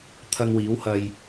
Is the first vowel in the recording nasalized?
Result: no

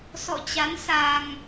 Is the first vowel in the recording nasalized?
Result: no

